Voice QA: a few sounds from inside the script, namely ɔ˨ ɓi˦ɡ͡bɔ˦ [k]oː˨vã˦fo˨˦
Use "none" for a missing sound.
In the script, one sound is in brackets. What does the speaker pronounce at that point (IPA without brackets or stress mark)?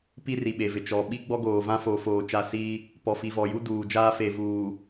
ɡ